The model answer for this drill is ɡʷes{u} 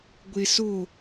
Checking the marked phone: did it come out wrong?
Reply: yes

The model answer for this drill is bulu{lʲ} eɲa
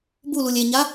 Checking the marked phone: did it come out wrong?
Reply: no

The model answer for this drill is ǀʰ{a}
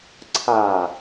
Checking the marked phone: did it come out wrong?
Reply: no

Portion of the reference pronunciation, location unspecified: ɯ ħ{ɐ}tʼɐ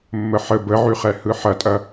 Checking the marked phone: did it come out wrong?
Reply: no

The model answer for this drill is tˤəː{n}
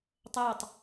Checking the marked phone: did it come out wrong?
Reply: yes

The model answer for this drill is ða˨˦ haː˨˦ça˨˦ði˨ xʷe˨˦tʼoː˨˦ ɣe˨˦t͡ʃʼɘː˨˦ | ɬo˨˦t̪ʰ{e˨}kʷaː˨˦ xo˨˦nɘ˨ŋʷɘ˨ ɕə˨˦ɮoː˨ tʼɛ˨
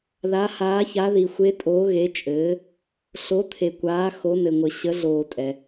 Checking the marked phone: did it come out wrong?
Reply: no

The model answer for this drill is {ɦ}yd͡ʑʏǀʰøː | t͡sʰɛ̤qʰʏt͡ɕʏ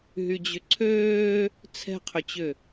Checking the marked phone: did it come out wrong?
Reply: no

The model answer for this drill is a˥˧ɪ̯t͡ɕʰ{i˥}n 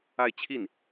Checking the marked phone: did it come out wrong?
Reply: yes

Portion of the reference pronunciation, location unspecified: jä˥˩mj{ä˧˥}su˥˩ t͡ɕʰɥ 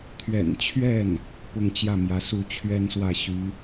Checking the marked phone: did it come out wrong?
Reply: no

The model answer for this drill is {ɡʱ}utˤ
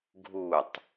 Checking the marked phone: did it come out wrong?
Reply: no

